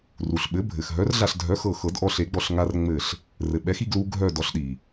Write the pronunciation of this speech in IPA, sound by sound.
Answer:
r u˩ ɬ ɓ ɘ˩˥ bʱ ɘ˩ x ɦ œ˩˥ r ɮ a˧˩ ɬ dʱ œ˩˥ x ɤ˧˩ x ɤ˨˩˦ d ʔ ɔ˧ ɬ e˨˩˦ ɡ͡b ɔ˧˩ ɬ ŋ a˧ r ŋ͡m ɘ˧˩ ɬ | r ɘ˩ ɓ ɛ˩˥ x i˧ ɡ l u˧ ɡʱ œ˧˩ d ɔ˩˥ ɬ ɗ i˩

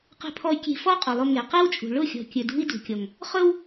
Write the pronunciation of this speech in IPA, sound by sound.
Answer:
q e̤˧ pʰ ɔ˧ y̯ kʲ e̤˧ f ɔ˦ qʼ ʊ˨ lˠ ʊ˧ ŋ e˨ q e˦ w t͡ʃʼ ṳ˨ ɭ ʊ˦˨ xʲ ɔ̤˨ kʲ ɵ˨ d ṳ˦ i̯ d ṳ˨ kʲ ɔ˨ ŋ | χ ɵ˦ w

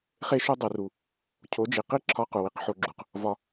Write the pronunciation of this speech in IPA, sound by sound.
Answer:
χ e˦ ʃ u˦ dˤ i˧ r u˧ | cʰ o˨˦ d͡ʒ i˨ q i˦ ǁʰ ɒ˦ q u˨ w i˨ q ħ o˧ ɡ͡ǁ u˨ q | v ɒ˦

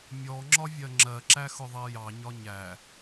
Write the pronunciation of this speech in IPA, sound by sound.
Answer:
mʲ ɔ ŋ͡ǁ ɒ vʲ ɜ ŋ͡ǁ ɜ ǁ æ x ʊ ðˤ ɜ j ɑ ɲ ɒ ɲ æ

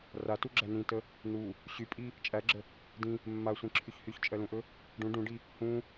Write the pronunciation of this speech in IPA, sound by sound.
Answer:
r a t u ɡ͡ǁ æ n ĩ t ə | n u | ɕ y pʼ i | t͡ʃʼ æ ɡ͡ǁ ə | d ĩ | mː a sʷ ĩ ǁʰ y ç h y ç t͡ʃʼ ɜ l ũ ʔ ɵ | ɖ ũ ɖ ũ ɖ i | h ũ

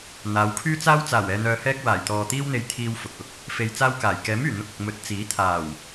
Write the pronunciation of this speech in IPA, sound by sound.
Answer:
n̪ aː˨˧ w kʰ yː˥ t͡s aː˥ w t͡s aː˨˩ w ɛː˨ n̪ œː˨ h ɛː˧ k̚ w aː˨˩ j t̪ ɔː˨ t̪ iː˥ w n̪ e˧ j t̪ʰ iː˧ w f ʊ˨ k̚ ʊ˥ k̚ | f e˧ j t͡s aː˥ w k aː˨˩ j k ɛː˨˥ m yː˨˩ n̪ ʊ˧ k̚ ʊ˨ k̚ m ɵ˨˥ t̚ t͡s iː˨˥ t̪ʰ aː˨˩ w

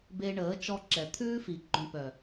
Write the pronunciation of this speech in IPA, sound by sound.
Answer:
b e˧ ɳ əː˨˦ t͡ʃ ɔ˧ ǁ ɛ˨ t̪ʰ ʉː˦ f i˨ ɡ͡ǃ œ̃˧ p œ˨

